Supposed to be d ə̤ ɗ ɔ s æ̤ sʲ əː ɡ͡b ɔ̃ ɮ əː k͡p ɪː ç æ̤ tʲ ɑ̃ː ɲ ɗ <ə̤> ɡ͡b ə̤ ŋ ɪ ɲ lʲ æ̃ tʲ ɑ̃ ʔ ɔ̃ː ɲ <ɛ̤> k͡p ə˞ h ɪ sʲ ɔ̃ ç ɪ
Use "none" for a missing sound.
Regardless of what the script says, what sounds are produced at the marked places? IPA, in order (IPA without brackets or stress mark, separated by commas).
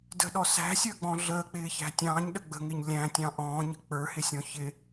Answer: ə, ə̤